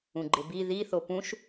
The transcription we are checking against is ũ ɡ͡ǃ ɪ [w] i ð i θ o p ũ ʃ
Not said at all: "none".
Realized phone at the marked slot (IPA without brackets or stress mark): b